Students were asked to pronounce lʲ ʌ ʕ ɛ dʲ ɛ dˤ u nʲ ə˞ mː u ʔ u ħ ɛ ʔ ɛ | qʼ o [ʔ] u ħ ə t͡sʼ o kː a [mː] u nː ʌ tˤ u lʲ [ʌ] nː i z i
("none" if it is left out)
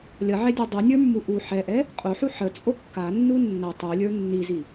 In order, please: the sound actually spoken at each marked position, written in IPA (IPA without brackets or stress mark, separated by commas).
ħ, nː, ə˞